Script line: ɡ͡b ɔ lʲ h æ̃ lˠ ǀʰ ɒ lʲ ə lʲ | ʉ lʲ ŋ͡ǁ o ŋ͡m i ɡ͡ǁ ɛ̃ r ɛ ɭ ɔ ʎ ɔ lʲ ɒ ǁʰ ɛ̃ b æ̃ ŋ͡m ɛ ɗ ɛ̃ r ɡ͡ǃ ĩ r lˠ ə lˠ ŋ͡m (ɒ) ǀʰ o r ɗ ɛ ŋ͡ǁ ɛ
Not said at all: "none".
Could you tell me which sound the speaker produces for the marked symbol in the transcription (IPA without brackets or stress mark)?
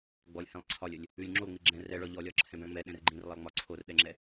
ɒ